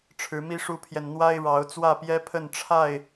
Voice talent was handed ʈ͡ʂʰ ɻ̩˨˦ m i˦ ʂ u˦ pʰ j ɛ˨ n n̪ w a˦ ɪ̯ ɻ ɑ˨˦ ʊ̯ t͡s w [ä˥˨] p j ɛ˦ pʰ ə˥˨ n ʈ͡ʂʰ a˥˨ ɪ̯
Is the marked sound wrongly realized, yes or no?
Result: no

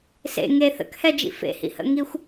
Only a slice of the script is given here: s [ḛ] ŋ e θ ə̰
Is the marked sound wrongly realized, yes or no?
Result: no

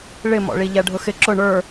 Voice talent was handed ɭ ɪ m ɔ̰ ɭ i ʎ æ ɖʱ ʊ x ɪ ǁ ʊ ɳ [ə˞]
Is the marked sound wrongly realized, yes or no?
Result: no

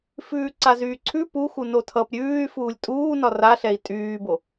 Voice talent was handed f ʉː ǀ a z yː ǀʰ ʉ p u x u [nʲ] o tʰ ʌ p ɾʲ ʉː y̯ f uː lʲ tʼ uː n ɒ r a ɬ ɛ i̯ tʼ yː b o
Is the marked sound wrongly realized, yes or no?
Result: yes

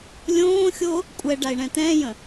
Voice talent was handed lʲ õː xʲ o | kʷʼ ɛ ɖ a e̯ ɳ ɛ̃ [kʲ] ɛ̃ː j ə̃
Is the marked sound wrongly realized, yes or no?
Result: yes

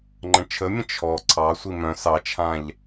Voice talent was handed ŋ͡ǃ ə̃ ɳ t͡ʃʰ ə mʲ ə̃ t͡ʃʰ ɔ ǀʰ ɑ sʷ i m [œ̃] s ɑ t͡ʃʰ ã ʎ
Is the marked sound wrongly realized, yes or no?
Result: no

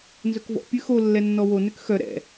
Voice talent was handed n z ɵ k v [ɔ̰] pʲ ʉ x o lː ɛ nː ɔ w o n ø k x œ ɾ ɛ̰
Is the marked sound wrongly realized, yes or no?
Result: no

